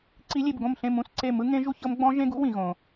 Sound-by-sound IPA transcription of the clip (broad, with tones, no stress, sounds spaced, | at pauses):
ǀ i˦˥ lʲ e˥˧ b ɡ õ˥˧ m ɬ ẽ˥˧ m ũ˥˧ s ǀ e˥˧ m ɯ˦˥ ŋ ẽ˦˥ ʒ u˦˥ ç ɤ˦˥ m ɡ͡b ɔ̃˦˥ ʒ ẽ˦˥ ɡ ṵ˦˥ w ĩ˦˥ ɣ õ˦˥